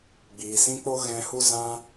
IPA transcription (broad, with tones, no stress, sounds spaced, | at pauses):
ɡ͡b iː˨ s ĩ˦ k͡p o˦ ɣ ɛ̃˧ h u˦ z ã˦